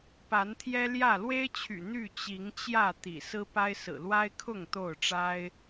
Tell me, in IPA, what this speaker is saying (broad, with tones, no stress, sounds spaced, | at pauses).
p a˨˦ n t̪ʰ j ɛ˦ l j ä˥˨ l w e˦ ɪ̯ t͡ɕʰ y̰˨˩ n̪ y˥˨ t͡ɕ i˨˦ ŋ t͡ɕ j ä˥˨ t̪ ḭ˨˩ s ɹ̩˦ p a˦ ɪ̯ s ɹ̩˨˩ l w a˦ ɪ̯ kʰ ʊ˥˨ ŋ t̪ o˥˨ ʊ̯ ʈ͡ʂ a˦ ɪ̯